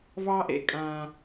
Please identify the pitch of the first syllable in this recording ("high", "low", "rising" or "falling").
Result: high